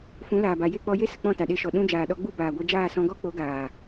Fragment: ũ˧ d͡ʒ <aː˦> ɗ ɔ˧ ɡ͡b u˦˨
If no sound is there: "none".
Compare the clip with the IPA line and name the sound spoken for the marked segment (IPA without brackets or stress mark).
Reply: aː˨